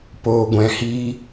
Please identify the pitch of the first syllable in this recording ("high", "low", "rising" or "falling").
low